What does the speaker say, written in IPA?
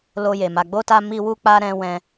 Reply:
l o˧ j e˨ m a˨ ɡ͡b o˧ t a˧ m i˧ w u˦ k͡p a˦ ɾ ɛ̃˧ w ɛ̃˧

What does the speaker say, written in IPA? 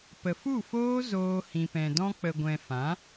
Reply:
p ə˨ f u˦˨ f oː˦ z oː˧ h ĩ˨ p ɛ̃˨ d ɔ̃˧ k͡p ə˨ ɡʷ ɛ̃˨ f ã˨˦

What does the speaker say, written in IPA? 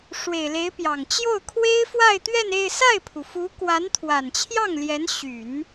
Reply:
ʂ w e˨˩ ɪ̯ l e˧˥ ɪ̯ p j ɑ˨˩ ŋ t͡ɕ j o˥˩ ʊ̯ kʰ w e˥ ɪ̯ f w a˥˧ ɪ̯ t̪ ɥ ɛ˥˧ n e˥˧ ɪ̯ s a˥˩ ɪ̯ pʰ u˩ f u˧˥ k w a˧˥ n t̪ʰ w a˨˩ n t͡ɕʰ j ɑ˥˩ ŋ l j ɛ˧˥ n ɕ y˨˩˦ n

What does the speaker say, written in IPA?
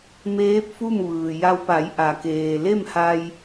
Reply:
m eː˧˥ p̚ f u˥˨ m ʋ ɯː˩ j a˧ w p a˩˧ j ʔ a˩ k eː˩ l e˥˨ m h a˧ j

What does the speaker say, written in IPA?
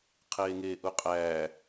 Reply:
qʰ eː ŋ eː ʔ u qʼ æː

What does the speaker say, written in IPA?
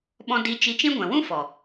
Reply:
ɓ ɔ̃˦ d i˧ t͡ʃ i˧ t͡ʃ ĩ˦ ɡʷ ɛ̃˨ w ũ˦ f ɔ˨

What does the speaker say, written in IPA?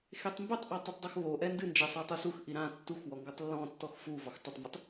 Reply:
x e tˤ m b ɘ tˤ ʔ ɔ tˤ e tˤ dˤ ɘ x β o ʔ ɛ n d ɨ n d͡ʒ ɛ sˤ o tˤ u s u x ʔ i ɾ ã tː u x w ɔ ŋ ɡ ɔ tˤ lː ɔ̃ tː ɔ x f u v ɔ x tˤ ɘ tˤ m ɨ tˤ

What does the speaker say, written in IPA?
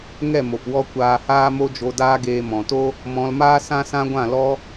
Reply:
ŋ ɛ˦˨ m o˨ p w ɔ˧ kʷ aː˧ h aː˦ m o˦ d͡ʒ o˧ d aː˦ ɡ eː˧ m ɔ̃˨ t o˦ | m ɔ̃˧ l m aː˦ s ã˦ s ã˦ ɡʷ ã˦˨ l ɔ˦

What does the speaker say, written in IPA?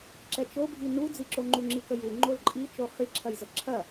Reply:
ǁ ɛ t͡ʃ o bʱ i n u d͡z i ǁ o ŋ͡ǃ u ŋ͡ǁ i k ə j u ŋ͡ǃ o l ǃʼ i t͡ʃ o χ i ǁʰ ɐ j z ə ǁʰ ɐ

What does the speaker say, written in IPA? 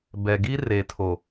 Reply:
b ɛ˨ ɡ i˦ r e˨ tʰ o˨

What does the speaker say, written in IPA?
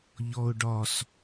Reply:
ʎ ɔ ʊ̯ ɖ ɒ s

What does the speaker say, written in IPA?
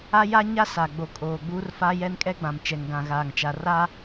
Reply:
a˦ j a˦ ɲ a˦ s a˨ ɡ͡b o˨ kʼ oː˨ ɡ͡b uː˦ r f a˦ j ɛ˦ n kʼ ɛ˦ ɡ͡b ã˨ m t͡ʃ ɛ˨ ŋ ɡ ã˨ ɣ aː˨ ŋ t͡ʃ a˨ r a˦

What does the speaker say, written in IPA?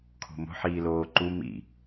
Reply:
kʰ o̤ m o̤ ħ iː l oː ǃ u m ḭ

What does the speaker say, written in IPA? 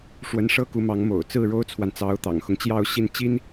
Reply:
ʂ w ə˧˥ n ʂ ɤ˥ k u˧˥ m ɑ˧˥ ŋ m o̰˨˩ ʊ̯ t͡s ɹ̩˥˩ ɻ o˥ ʊ̯ t͡sʰ w a˨ n t͡s ɑ˧˥ ʊ̯ t̪ ɑ̰˨˩ ŋ x ʊ˦ ŋ t͡ɕ j ɑ˥˧ ʊ̯ ɕ i˥˩ n t͡ɕ i˥ n

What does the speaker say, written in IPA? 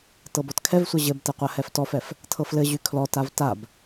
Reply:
t ɤ b ɔ t kʰ ɛ v sʷ ɘ ʑ ɘ b t ɛ qʷ a h ɛ f t ɔ f ɛ f | tʰ ɤ f l ɘ ʑ y kʰ l ɔ t a v t a b

